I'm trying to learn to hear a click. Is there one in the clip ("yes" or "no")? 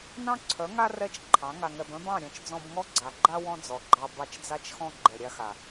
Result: yes